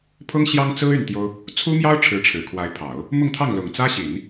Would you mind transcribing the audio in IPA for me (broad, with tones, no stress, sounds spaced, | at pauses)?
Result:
pʰ ʊ˥ ŋ ɕ j ɑ˥ ŋ t͡s ɹ̩˥ y˥˩ n t̪ j o˥ ʊ̯ | t͡sʰ u˥ m j ɑ˥ ʊ̯ ʈ͡ʂʰ ɻ̩˧˥ ʈ͡ʂʰ ɻ̩˨˩ kʰ w a˧˥ ɪ̯ pʰ ɑ˨˩˦ ʊ̯ | m ʊ˥˧ ŋ t̪ʰ ɑ˥˩ ŋ l ʊ˨˩ ŋ t͡s ä˥ ɕ i˨˩˦ n